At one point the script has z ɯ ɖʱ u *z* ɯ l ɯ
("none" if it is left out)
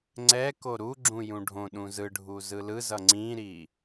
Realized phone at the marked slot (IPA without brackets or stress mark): z